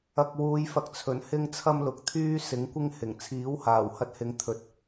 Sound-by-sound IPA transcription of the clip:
ɐ˨ k̚ w uː˨˧ j f ɐ˨ k̚ t͡sʰ ɵ˨˩ n h ɪ˥ ŋ t͡sʰ ɐ˥ m l ʊ˨˥ k̚ t̪ʰ yː˥ s ɪ˨˥ ŋ kʷ ɪ˥ ŋ h ɪ˨˩ ŋ t͡sʰ iː˨˥ w h aː˨˩ w h ɐ˧ t̚ h ɪ˨˧ ŋ t̪ʰ ɵ˨˥ t̚

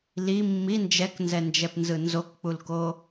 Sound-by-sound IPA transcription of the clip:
l i mː i n d͡ʒ ɛ k n z ɛ n d͡ʒ ɛ p n z ɯ n z o k k͡p u l k o

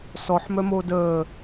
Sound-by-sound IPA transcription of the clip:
s ɔ ħ m œ m oː d əː

